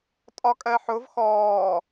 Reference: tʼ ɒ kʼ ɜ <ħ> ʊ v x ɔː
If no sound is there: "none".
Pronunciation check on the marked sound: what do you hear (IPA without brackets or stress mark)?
ħ